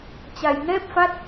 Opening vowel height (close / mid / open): open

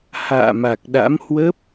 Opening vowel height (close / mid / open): open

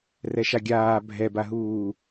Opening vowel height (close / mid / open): mid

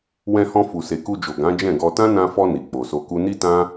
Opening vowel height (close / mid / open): mid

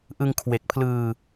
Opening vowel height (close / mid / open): close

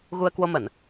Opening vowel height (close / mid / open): close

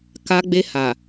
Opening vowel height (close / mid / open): open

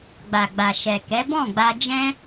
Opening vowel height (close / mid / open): open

